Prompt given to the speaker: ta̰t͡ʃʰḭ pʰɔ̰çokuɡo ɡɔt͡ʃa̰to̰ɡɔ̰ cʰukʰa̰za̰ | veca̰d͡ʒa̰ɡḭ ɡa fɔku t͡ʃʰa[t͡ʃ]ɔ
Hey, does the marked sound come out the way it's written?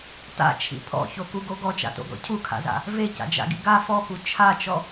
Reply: yes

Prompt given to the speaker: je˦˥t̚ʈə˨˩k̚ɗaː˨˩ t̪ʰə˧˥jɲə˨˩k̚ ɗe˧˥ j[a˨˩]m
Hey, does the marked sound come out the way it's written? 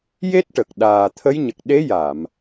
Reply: no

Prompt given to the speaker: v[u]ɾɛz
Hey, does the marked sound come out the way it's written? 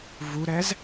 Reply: yes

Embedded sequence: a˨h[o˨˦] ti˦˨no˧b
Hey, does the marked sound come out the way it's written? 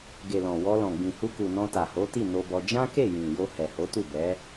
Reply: yes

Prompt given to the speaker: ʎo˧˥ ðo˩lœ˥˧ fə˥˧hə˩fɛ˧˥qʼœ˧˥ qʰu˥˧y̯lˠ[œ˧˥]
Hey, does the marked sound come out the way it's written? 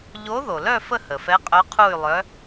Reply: yes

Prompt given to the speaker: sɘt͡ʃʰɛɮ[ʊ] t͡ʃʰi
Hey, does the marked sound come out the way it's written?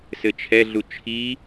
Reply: no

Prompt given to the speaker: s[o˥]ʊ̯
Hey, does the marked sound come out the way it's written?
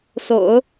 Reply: no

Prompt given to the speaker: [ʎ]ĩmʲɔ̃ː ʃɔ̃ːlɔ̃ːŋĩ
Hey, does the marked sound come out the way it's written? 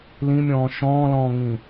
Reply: no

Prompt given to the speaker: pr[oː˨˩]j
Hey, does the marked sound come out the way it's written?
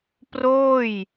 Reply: no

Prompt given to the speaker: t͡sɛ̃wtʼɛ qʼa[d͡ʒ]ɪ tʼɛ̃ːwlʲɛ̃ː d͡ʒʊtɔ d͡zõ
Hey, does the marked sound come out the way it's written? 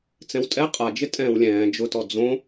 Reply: yes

